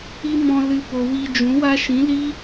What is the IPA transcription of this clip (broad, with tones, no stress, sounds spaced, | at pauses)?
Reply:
i˦ m ɔ̃˧ l ɨ˧ p o˨ w i˧ d͡ʒ ũ˨˦ w a˦ ʃ ĩ˨˦ l i˦